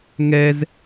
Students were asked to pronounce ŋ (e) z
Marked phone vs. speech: incorrect: ɛ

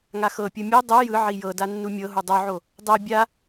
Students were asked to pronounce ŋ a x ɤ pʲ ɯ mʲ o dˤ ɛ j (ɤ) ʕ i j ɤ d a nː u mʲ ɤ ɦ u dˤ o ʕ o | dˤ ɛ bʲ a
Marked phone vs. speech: incorrect: ɯ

